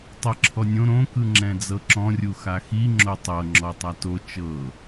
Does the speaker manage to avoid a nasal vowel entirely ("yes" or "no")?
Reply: no